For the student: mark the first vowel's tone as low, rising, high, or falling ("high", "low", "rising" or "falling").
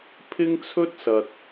high